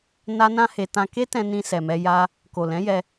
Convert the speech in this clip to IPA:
n a˦ n ã˦ h e˧ t ã˧ k e˦ t ɛ̃˧ n ĩ˧ s ɛ˨ m ɛ˧ j a˦ | k o˨ l ɛ̃˨˦ j ɛ˧

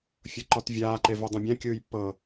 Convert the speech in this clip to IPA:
fʲ ɤ ǃ ɔ t vʲ aː ǃ e v e dˤ ũ bʲ ã kʲ ɯː j pː ɤ

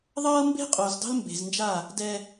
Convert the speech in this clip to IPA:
ðˤ ɤː˦ m b e̤˦ qʼ o˨ z dˤ ə̤˦ l m b e̤˨ z n d͡ʒ a˦˨ | d ɛ˦

